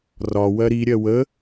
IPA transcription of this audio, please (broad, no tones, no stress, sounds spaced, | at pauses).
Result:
r ɒ w ɜ ɾ i ɾʲ ɜ w ə